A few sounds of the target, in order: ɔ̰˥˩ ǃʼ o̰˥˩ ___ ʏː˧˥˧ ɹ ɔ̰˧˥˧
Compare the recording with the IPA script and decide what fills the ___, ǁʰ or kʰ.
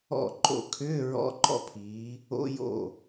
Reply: kʰ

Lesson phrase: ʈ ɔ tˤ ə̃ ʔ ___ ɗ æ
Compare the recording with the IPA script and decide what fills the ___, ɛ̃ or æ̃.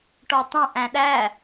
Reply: æ̃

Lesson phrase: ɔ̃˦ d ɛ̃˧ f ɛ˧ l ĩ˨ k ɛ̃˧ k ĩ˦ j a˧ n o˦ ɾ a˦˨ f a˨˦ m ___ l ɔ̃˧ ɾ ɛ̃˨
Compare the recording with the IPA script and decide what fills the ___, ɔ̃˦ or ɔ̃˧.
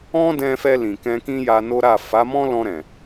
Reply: ɔ̃˦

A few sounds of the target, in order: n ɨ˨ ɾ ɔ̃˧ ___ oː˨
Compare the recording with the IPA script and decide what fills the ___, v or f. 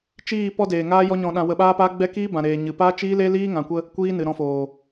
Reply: f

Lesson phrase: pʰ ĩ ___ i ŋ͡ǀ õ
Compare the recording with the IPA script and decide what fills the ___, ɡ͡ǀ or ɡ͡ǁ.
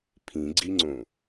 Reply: ɡ͡ǀ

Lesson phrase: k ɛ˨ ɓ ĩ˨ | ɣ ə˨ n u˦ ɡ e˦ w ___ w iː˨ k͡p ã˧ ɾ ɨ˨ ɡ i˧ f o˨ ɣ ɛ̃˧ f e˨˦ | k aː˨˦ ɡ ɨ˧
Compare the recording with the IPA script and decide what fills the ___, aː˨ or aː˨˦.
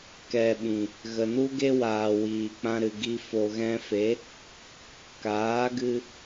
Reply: aː˨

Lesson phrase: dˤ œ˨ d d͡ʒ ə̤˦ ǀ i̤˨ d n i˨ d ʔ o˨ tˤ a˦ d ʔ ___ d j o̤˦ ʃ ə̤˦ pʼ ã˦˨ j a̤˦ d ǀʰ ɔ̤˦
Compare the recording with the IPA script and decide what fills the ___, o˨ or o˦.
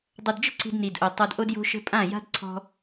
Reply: o˦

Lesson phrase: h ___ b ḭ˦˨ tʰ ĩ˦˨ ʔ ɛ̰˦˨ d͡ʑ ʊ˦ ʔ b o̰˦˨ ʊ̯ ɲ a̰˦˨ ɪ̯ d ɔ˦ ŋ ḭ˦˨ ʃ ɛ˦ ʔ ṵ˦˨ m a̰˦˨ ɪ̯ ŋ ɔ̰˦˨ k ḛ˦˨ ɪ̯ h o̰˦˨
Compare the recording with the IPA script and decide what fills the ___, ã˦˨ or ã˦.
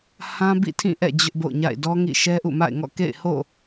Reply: ã˦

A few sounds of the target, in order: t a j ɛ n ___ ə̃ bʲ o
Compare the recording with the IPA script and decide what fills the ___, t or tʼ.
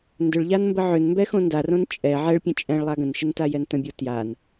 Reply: t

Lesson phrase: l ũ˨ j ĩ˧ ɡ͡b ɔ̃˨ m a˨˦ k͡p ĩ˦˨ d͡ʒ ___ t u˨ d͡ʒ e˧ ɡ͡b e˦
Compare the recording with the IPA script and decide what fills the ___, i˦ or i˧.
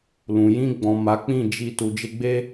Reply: i˧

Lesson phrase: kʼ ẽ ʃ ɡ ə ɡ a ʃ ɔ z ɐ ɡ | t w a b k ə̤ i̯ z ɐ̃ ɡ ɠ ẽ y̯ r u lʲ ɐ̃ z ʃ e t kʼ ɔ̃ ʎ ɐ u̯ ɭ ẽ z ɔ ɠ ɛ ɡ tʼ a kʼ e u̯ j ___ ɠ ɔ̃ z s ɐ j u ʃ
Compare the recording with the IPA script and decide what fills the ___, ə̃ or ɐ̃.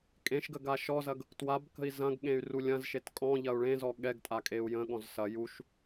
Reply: ə̃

